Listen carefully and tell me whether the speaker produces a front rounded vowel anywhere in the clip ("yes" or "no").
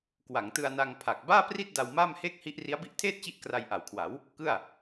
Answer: no